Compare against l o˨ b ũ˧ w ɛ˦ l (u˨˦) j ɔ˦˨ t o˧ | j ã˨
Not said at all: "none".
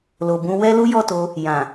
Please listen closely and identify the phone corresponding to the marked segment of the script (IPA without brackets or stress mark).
u˦